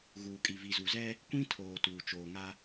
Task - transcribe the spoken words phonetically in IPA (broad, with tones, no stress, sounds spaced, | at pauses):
ɣ uː˨ kʼ i˨ v i˨ z u˨ z ɛ˦ | kʷ ĩ˦ tʰ oː˨ t uː˨ t͡ʃ oː˨ ŋ a˦